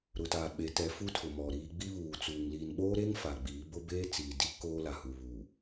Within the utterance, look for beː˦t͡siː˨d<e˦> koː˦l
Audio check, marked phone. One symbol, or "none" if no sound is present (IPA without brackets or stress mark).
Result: i˦